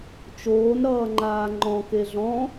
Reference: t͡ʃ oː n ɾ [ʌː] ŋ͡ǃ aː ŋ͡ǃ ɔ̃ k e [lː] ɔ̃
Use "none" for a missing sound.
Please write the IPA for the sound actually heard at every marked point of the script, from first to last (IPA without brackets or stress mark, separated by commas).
ʌː, ɮ